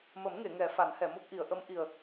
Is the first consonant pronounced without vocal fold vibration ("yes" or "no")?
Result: no